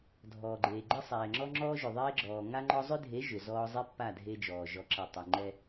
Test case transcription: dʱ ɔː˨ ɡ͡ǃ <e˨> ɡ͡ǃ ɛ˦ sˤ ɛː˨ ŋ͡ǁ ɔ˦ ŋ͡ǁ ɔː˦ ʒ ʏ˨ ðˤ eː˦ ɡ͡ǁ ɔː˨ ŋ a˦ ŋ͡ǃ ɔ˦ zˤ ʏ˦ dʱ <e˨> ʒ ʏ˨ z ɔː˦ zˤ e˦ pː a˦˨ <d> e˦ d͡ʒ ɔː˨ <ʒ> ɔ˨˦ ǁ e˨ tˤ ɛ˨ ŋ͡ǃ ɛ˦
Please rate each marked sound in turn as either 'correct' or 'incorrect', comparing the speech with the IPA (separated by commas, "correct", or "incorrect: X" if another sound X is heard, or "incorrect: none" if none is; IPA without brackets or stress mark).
incorrect: eː˨, incorrect: e˨˦, incorrect: dʱ, correct